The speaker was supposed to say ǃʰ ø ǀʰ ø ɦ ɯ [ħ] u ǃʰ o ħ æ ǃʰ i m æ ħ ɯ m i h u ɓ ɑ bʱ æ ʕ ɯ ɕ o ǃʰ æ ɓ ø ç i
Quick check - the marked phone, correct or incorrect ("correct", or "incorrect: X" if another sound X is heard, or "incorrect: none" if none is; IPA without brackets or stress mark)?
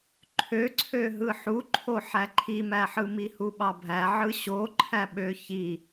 correct